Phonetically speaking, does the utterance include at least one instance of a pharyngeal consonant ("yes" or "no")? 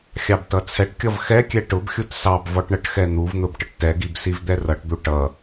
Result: no